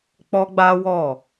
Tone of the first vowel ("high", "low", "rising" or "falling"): high